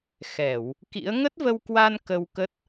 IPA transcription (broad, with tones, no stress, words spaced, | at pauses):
xɛ˧˩˨w | kḭ˧˥ə̯ ŋə˦˥t̚və˧wkwa˧n kə˧wkə˦˥t̚